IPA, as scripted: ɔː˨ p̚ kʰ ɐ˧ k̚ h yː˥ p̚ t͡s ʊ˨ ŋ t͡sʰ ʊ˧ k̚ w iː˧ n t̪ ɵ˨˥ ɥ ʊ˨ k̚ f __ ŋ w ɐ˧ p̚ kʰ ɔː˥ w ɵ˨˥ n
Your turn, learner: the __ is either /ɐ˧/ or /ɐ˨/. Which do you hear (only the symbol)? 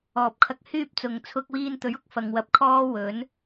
ɐ˨